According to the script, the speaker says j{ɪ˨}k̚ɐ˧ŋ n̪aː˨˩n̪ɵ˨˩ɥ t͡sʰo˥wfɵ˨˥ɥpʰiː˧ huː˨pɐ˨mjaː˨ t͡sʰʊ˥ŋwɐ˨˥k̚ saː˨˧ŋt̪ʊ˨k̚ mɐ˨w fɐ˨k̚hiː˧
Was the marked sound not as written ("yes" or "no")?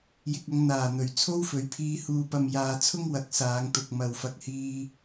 no